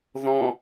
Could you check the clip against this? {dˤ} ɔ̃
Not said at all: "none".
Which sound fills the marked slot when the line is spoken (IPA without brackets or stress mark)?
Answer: ð